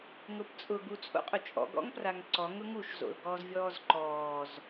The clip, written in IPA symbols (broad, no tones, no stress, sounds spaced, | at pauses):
ŋ ʊ p t͡sʼ ʊ ɡ u t͡sʼ o̰ qʼ ʊ t͡ʃʼ ɔ̰ ɡ ɔ̰ ŋ p r a ŋ ǀ ɔ ŋ ʊ ŋ u ʃ z o̰ l ɡ ɔː z vʲ ɔː z ǃ ɔː z